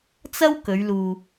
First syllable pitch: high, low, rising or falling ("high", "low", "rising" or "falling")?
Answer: high